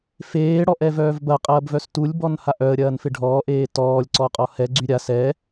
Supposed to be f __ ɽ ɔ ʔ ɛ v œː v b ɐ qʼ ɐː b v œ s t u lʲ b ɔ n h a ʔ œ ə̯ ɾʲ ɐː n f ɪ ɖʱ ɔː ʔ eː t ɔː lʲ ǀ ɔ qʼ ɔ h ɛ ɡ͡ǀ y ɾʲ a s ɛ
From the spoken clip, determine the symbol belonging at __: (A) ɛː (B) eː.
B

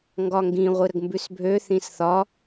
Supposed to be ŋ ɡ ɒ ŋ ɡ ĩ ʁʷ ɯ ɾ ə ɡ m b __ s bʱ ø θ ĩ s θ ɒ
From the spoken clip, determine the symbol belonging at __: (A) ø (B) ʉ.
B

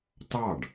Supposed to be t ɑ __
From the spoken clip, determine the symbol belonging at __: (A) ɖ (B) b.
A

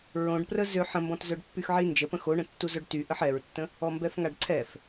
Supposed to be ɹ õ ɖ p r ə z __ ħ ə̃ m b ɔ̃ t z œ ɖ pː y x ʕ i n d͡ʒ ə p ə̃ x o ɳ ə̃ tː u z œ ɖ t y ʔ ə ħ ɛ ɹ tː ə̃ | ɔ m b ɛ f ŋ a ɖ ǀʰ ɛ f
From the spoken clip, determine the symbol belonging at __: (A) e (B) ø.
B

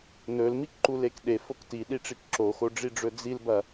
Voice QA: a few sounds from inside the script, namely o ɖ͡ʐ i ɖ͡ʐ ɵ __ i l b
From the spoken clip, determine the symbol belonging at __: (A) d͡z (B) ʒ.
A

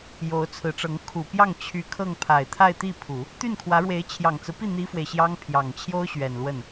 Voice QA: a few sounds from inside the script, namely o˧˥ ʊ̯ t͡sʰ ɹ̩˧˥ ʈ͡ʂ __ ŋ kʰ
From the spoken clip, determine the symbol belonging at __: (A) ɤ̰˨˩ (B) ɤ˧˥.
B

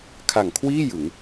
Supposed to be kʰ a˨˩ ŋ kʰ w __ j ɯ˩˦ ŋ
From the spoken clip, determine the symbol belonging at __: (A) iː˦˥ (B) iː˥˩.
B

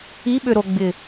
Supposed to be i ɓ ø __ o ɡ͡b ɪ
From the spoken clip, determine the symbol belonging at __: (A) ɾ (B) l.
A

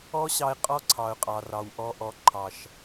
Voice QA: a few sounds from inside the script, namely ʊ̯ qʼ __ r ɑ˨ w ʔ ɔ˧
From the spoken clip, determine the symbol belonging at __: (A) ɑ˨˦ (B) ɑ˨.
B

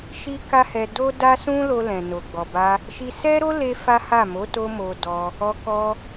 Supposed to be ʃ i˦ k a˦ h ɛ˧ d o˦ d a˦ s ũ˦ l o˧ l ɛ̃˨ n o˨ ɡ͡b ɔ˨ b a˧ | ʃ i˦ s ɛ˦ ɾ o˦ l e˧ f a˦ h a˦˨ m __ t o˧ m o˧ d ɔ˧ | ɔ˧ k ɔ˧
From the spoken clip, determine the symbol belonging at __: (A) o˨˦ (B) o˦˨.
A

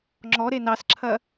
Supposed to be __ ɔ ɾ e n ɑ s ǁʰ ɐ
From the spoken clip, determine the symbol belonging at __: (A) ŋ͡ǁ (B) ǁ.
A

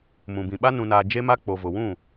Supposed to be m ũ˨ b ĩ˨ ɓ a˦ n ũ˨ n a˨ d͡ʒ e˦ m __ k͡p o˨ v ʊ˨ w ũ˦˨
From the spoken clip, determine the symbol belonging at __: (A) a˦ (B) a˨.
A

